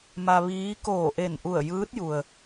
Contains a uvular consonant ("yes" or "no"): no